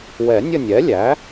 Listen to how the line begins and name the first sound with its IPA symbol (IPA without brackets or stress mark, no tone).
w